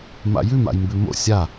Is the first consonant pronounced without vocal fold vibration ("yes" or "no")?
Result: no